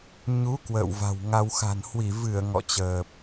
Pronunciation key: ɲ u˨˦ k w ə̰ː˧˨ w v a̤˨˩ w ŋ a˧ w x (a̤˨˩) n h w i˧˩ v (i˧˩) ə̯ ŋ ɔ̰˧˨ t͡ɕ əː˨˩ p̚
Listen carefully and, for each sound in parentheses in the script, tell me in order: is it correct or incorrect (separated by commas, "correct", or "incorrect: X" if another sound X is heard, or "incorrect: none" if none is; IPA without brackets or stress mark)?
correct, incorrect: ɨ˧˩